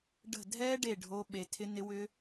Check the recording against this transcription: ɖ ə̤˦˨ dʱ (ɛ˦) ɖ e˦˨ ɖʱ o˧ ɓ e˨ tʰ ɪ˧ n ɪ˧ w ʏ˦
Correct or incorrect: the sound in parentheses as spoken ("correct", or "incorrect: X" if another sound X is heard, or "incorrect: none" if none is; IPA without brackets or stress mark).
correct